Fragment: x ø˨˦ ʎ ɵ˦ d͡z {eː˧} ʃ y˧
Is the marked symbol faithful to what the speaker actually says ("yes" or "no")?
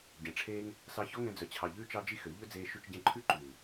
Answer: yes